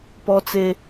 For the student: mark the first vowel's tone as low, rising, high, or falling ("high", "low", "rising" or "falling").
high